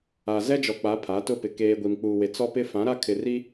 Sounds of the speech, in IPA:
a˨ z ɛ˦ d͡ʒ ɔ˨ k͡p a˨˦ pʰ a˨˦ t ʊ˦ p ɪ˨ k eː˨ ɡʷ i˨ m k͡p uː˨ w e˨ t͡s ɔ˦ p ɪ˦ f ã˨˦ ɾ a˦ kʰ ɪ˨ r i˦

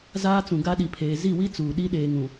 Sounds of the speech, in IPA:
z aː˦ t͡s ũ˨ ɡ a˦ ɗ i˨ pʰ eː˨ z i˦˨ w i˦ t͡s uː˨ ɗ i˦ ɗ eː˨ ŋ ũ˨

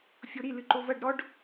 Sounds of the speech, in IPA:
fʲ o ɾ i l ɨ ǃ o v ɐ ɖ ɾ ɔ ɖ

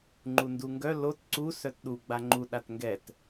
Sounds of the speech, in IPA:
ŋ͡ǃ u n d u ŋ ɡ œ l o t ǀ u s œ t ɗ u ɡ͡b a ŋ͡ǃ u ɗ a t ŋ ɡ ɛ t

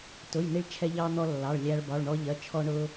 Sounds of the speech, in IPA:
t ʊ˩˧˩ j n i˧ ɭ t͡ʃʰ ɛ˧ ʎ ɑ˧ n̪ ɔ˧ lː ɑ˩˧˩ ɭ lʲ æ˧ ɭ b ɒ˩˧˩ ɭ ɳ ɔ˧ ʎ ɜ˩˧˩ t͡ʃʰ ɔ˧ ɳ ʊ˧

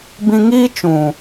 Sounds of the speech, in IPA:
b ĩ˨ ŋ iː˦ t͡ʃ ũ˨

